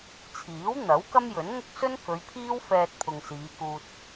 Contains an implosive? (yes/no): no